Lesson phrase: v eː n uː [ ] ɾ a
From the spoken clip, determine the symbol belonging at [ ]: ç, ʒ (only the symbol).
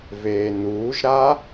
ʒ